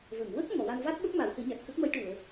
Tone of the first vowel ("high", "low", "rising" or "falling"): low